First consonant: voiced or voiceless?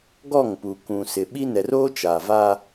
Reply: voiced